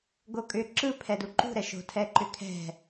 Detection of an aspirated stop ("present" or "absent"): present